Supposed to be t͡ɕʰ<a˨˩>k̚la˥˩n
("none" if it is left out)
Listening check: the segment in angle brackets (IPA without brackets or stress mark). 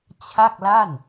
a˥˩